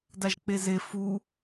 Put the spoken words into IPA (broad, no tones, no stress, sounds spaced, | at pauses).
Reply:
d a ʒ k͡p e z e f u